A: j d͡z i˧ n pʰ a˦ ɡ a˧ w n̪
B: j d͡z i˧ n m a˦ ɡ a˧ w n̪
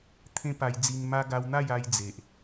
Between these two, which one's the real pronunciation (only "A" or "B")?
B